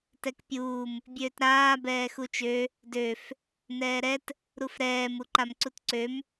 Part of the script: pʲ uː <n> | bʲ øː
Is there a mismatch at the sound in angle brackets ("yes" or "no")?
yes